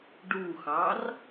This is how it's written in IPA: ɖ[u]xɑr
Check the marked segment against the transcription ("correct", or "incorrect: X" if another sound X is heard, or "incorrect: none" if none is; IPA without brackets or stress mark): correct